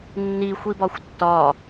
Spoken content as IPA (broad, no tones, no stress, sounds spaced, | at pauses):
nː i xʷ i b ɒ xʷ tː ɒ